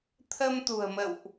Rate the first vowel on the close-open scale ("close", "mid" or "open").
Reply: mid